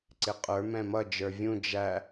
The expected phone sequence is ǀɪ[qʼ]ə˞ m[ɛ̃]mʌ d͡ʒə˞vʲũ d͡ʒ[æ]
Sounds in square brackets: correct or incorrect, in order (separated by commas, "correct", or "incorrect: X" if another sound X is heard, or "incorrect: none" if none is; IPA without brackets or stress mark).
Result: correct, correct, correct